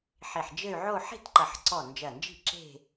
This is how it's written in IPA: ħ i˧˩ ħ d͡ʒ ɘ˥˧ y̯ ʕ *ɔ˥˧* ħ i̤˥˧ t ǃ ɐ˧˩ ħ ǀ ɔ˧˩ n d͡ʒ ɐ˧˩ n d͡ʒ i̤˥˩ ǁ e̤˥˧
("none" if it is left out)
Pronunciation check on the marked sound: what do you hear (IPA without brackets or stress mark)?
o˥˧